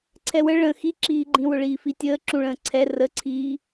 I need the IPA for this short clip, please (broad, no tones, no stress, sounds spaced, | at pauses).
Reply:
ǀʰ ɛ w ə ɭ ə̃ x i ǁ iː ɡ͡ǃ ĩ w ʊ ɭ iː f i tʲ əː ǁ ũ ɭ ə̃ː ǀʰ ɛ r ə ǀʰ iː